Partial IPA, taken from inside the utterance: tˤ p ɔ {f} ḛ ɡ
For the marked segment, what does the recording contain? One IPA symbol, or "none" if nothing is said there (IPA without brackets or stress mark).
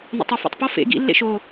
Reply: f